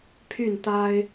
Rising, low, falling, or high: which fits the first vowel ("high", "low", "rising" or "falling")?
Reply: falling